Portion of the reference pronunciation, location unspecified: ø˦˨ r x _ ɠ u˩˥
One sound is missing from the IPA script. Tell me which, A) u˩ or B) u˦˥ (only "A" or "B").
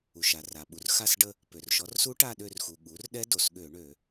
A